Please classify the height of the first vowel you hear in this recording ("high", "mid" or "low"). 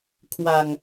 low